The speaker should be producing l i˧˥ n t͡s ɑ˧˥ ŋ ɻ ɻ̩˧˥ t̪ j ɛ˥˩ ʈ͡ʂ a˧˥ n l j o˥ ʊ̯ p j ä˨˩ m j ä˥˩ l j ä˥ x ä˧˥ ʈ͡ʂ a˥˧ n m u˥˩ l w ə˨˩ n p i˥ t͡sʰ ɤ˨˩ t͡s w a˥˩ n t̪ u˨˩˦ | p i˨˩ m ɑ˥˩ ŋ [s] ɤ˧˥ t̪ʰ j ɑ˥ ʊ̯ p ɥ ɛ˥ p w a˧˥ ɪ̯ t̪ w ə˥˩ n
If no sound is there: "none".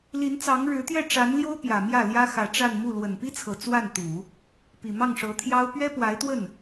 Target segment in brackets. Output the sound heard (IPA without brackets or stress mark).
ʂ